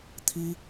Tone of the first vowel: high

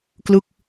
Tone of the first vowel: falling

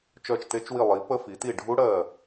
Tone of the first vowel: falling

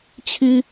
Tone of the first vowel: high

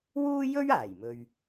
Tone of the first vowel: high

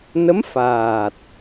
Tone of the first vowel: rising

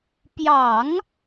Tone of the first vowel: low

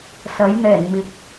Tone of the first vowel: rising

